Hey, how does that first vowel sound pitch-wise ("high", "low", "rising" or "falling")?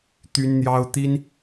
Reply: high